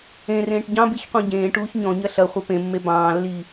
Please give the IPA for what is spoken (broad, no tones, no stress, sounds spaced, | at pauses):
ẽ r ẽː ʈ ɟ ɑ̃ b i ç qʷ ẽ ɟ ẽː ʈ uː ç ɲ ɔ̃ ɲ ɐ ɬ ɐ χʷ ɐ p ẽ mː e b ɑ̃ː lː i